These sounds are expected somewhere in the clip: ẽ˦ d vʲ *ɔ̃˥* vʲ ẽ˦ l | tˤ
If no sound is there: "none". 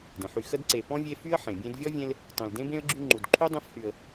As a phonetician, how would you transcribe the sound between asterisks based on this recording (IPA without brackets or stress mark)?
ɔ˥